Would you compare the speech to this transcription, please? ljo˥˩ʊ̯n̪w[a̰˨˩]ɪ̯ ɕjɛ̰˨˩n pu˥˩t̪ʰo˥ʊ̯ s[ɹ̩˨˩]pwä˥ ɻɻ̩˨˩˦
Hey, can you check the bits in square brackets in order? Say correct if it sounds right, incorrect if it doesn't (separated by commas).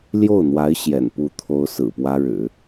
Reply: incorrect, correct